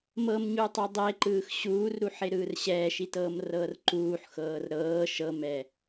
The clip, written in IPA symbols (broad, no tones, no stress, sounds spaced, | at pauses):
m ɤ m ɲ u tˤ ɛ dˤ e ǃ ɯː x ɕ uː r ɾ u ħ e ɾ ɯː r ɕ ɛː ʃ i t ɤː m r ɤː r ǃ uː ħ x ɤː r ɾ ɤː ʃ ɤ m ɛ